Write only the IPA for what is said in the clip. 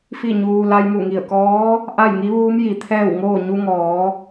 fi˥˨ɲuː˧ la˧jmu˧˩ŋi˧˩ə̯kɔː˧˥ | ʔa˥˨jŋi˧˥ʋuː˧˥m ji˩˧t̪ʰɛː˥˨wŋoː˥˨ ɲu˧ŋɔː˩˧

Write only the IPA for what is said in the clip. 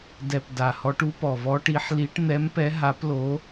dɛ˨˩p da˨˩hɔ˨˦ʈ u˨˦pɔ˨˩vɔ˨˦ ʈi˨˦ħ li˨˦ʈ n̪ɛ˨˦mpɛ˨˦ɦa˨˦plo˨˦

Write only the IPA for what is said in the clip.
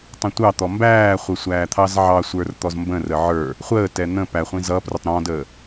tˤə̃tʷɑt̪ɔ mbæːχʷə sʷæːt̪ʰɑzʕɑsʷə˞r t̪ɔzmbə̃rə ʕə˞ | χʷəːtɛ n̪ə̃ pæχʷĩ zʌprʊtˤ ɾɔ̃dəː

